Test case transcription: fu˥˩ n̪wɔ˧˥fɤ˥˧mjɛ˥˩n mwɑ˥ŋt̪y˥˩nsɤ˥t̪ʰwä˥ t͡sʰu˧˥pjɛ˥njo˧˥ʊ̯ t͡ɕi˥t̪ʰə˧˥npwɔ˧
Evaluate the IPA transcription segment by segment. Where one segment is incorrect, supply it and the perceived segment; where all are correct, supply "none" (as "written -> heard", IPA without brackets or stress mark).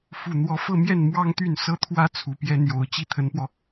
none